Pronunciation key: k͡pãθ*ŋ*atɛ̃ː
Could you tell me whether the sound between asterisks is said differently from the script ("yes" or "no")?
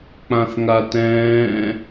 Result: no